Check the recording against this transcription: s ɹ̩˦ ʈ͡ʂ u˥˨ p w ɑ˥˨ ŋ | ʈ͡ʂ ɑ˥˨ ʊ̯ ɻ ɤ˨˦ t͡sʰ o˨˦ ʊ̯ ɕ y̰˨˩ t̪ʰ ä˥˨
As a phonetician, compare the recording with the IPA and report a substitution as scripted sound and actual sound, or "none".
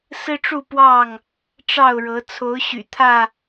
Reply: none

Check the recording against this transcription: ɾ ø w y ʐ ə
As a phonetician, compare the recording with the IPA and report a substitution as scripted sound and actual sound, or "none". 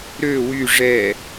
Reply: ə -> ɛ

